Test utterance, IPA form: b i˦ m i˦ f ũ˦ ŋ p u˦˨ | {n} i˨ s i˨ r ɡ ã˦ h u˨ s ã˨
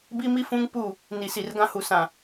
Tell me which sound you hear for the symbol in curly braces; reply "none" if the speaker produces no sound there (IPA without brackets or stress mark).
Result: n